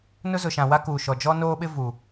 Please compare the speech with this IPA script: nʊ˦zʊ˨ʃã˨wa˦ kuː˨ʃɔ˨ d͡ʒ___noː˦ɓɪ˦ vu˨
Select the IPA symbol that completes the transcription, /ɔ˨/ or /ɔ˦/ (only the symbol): ɔ˦